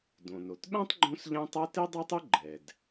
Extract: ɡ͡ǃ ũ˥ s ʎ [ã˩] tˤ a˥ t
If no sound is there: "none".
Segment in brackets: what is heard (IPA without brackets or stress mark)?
ã˥